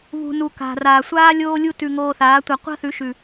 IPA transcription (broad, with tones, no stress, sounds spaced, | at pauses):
β ṳ˨ n u˨ k a̤˨ r aː˨ sʷ aː˦ lʲ oː˦ lʲ u˦ t ʉ˧ ŋ oː˧ θ aː˨˦ tʷ a˧ qʷ a̤˦ θ ʉ˨˦ ʃ ʉ˨